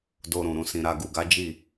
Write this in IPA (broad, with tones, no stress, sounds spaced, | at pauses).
d o˧ ɾ ũ˨ ɾ ũ˧ s ĩ˨ ɾ a˧ ɡ u˨ ɡ a˨˦ d͡ʒ i˦˨